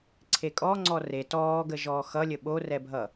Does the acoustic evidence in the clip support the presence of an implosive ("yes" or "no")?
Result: yes